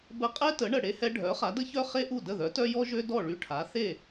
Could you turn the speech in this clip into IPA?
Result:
b ə˧ qʼ ɛ˥ t ə˩˥ ɳ ə˩ ɽ e˧ h ɛ˧ ɖʱ œ˩˥ χ a˩˥ d ə˥ ç œ˥ χ e˥ ʔ u˥˩ d ə˥˩ ð œ˩˥ t œ˥ j ɔ˥ ʒ ø˥ d ɔ˥˩ ɭ y˧ ʈʰ a˩˥ θ e˥˩

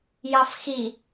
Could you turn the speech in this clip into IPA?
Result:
j ɑ f x i

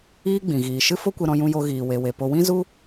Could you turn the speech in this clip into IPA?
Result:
iː˦ ɡ͡b ĩ˨ ɣ iː˨ ʃ ɨ˦ f o˦ kʷ e˧ ɾ ɔ̃˧ j ũ˧ j o˧ ɣ iː˨ w e˨ w e˨ p o˧ w ĩ˦ z u˦

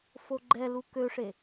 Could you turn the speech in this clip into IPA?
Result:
f o ɡ͡ǃ ɛ l u k ø ʂ e

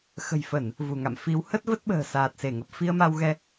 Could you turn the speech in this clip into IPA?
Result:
x ə̤˨˩ j f ə˧˩˨ n | v u˧˩ ŋ a̰˧˨ m f i˨˦ w h ə˦˥ t̚ v ə˦˥ t̚ ɓ ə̤ː˨˩ s aː˨˩ t̚ s e˧˩ ŋ ə˨˩ p̚ f i˧ ə̯ m a˧ w ɣ ɛ˧

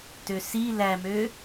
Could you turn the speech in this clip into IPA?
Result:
t ø s i l æ m ø

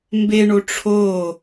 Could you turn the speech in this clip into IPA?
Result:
m b e ɳ o ʈ͡ʂʰ o

